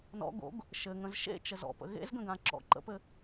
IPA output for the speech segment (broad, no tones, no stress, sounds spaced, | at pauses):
n ɔ̰ ɡ o̰ ɡ | ʃ ɘ ŋ ə̃ z ʃ ḛ t͡ʃ ə z ɔ̰ p ə̰ ɣ ḛ z ɡ ə̃ ɡ ã ǁ ɔ̰ ǃ ə̰ p ɘ